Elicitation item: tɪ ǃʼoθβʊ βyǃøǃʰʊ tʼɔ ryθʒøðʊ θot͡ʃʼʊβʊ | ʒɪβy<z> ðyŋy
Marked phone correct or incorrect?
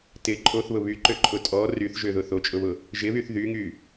incorrect: θ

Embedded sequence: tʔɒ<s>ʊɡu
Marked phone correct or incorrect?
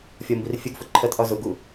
incorrect: z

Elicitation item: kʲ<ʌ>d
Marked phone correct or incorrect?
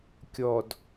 incorrect: ɔ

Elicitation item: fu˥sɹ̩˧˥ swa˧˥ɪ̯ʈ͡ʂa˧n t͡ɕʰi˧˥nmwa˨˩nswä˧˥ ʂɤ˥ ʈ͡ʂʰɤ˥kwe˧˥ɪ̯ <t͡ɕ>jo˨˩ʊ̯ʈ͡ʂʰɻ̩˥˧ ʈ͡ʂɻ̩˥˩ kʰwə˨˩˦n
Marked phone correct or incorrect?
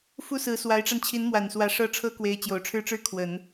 correct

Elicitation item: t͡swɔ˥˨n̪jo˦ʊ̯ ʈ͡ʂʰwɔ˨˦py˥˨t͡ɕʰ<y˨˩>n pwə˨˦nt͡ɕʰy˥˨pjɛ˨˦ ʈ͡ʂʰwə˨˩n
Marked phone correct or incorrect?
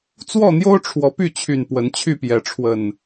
correct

